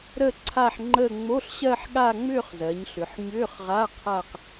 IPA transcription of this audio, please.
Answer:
ɾ ə˥˧ ǀʰ a˥˧ ħ ŋ͡ǃ ə˥˧ ŋ͡m o˧˥˧ ɬ ɕ ɜ˥˧ ħ ɠ a˥˧ ŋ͡m ʏː˥˧ χ z ɜ˩˧ ɲ ɬ ʏ˩˧ ħ ɲ ʏː˧˥˧ χ ʁ a˧˥˧ qʰ a˥˧ q

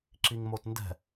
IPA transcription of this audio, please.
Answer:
ǁ i ŋ m o t n d ɛ̤

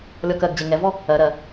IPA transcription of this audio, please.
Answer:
lʲ ɔ k ɜ ɡ d͡ʑ e ŋ ɛ v ɔ | ɜ ɾ ɜ

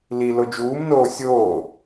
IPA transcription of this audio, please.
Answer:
l i l o d͡ʒ uː m n oː sʲ oː

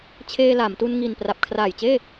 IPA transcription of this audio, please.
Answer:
t͡ɕʰ eː˧ l a˩˦ m t u˧ n ŋ i˨˩ n p r a˨˩ p̚ kʰ r aː˨˩ j t͡ɕ eː˥˩

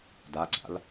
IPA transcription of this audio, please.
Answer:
d a ɡ͡ǀ a̰ l

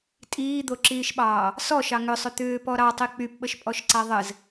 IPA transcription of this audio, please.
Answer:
tʼ iː d̪ o ǁ iː ʃ ɓ ɑː | s ɔ ʃ ɑ ŋ ʏ sˤ ʏ t̪ ʏː p ɔ ɾ ɑ tˤ i k͡p y p ɓ ə ʃ pʼ ɔ ʃ ǀ a ðˤ ɘ z

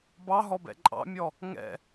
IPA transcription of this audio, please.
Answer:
b ɑ ɦ ɔ b ɛ̰ ǃʼ ɑ̰ mʲ ɔ | ŋ ɛ̰

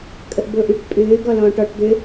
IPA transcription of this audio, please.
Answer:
kʼ ə ʔ b ʊː ʔ y ʈ pʼ ʏː ɡ ɔ l ɔ̃ː ʈ ɔ ʈ d̪ ʏ

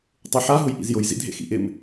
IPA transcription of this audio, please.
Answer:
tˤ ʉ ħ a ɦ ʊ j ʔ ḭ z j ʊ j z ḭ dʱ ḛ x ḭ ʔ ɪ m

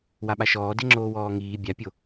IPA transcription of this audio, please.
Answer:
w a ɓ a ʃ ɔː d e ŋ͡ǁ oː w ɔː ŋ iː bʲ a pʲ o

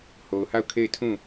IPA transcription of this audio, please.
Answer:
h o˨ ʊ̯ h a˦˨ ʊ̯ kʰ e˦˨ ɪ̯ tʰ ũ˦˨

